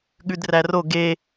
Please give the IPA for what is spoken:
ɠ ʉ d r æ r o ɡ e

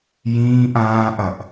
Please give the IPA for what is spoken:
j ĩː ʔ ãː ʔ ɐ ʔ

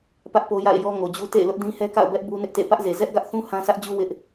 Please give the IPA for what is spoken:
p ä˦ ʔ p o˦ j a̰˦˨ ɪ̯ j ɔ˦ ŋ o˨ d͡ʑ u˦ t ḛ˦˨ ɪ̯ l ʊ˦ ʔ d ĩ˦ h ɛ˦ k a̰˦˨ ʊ̯ b ɛ˦ ʔ b u˦ n ɪ˦ ʔ t ḛ˦˨ p ä˦ ʔ z e˨ z ɛ˦ ʔ ɡ ä˦ ʔ θ ũ˦ h ã˦ s ä˦ ʔ d͡ʑ u˦ w ɪ˦ ʔ

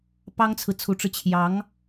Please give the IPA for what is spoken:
p ɑ˥ ŋ t͡sʰ ɹ̩˨ t͡sʰ u˧˥ ʈ͡ʂ ɻ̩˧ t͡ɕʰ j ɑ˧˥ ŋ

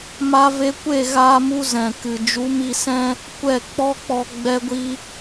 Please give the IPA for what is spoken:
m a˧ v e˧ kʷ e˦˨ ɣ aː˧ m u˧ z ɛ̃˨ k ɨ˨ d͡ʒ u˨˦ m i˧ s ɛ̃˦ | kʷ ɛ˦˨ k͡p ɔ˦ k͡p ɔ˧ ɡ͡b ɛ˧ ɡʷ i˧

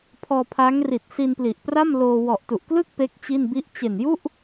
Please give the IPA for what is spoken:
pʰ ɔː˧ pʰ a˦˥ ŋ r i˨˩ t̚ s i˧ n p l i˨˩ ʔ p r a˥˩ m l oː˧ w ɔ˨˩ ʔ t u˨˩ ʔ k l ɯ˥˩ k̚ p e˦˥ k̚ t͡ɕ i˥˩ n b i˥˩ ʔ t͡ɕ e˨˩ n j u˥˩ ʔ

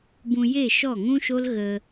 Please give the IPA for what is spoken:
b ũ˧ j e˦˨ ʃ ɔ˦˨ ŋ ũ˦ ʃ o˦ l ɣ ə˧

